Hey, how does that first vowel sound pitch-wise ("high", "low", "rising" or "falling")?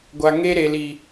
low